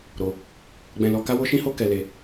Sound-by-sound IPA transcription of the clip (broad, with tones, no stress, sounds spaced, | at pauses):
ɾ o˧ | ɡ͡b ɛ̃˧ l ɔ˧ k a˦ w o˦ ʃ ĩ˦ h o˦ k ɛ˧ l e˧